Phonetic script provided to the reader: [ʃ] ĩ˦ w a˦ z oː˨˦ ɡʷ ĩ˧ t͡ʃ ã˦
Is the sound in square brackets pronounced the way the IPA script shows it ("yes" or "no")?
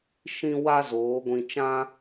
yes